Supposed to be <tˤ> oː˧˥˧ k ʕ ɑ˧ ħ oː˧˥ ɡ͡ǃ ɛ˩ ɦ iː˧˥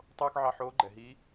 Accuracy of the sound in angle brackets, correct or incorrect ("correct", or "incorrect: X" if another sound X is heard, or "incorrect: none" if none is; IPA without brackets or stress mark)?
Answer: correct